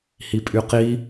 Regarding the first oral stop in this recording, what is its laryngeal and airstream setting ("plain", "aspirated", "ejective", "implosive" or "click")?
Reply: ejective